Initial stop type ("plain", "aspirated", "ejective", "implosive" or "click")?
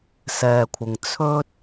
aspirated